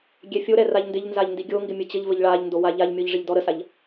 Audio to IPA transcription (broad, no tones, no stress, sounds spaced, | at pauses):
ɡʲ ɛ fʲ o ɾ ɛ r a ʎ n d ɪ ʎ n z a ʎ n d i ɡʲ o ŋ ɡ ɪ mʲ ə t͡ɕ ə ʎ v ə ʎ ɭ a ʎ n d o w a ʎ a ʎ mʲ ɔ ʎ ʐ ɪ ʎ d ɔ ɾ ə s a ʎ